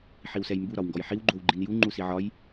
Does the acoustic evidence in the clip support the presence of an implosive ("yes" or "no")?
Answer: no